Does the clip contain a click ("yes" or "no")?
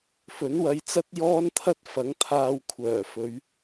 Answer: no